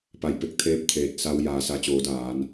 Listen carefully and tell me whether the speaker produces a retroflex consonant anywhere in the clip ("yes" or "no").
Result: no